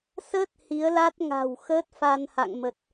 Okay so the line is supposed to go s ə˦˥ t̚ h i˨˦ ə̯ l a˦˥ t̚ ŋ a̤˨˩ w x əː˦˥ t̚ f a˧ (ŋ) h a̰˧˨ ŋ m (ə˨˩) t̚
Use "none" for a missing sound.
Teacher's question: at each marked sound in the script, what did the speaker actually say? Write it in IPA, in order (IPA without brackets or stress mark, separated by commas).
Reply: n, ə˨˩